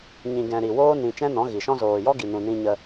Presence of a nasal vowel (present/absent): present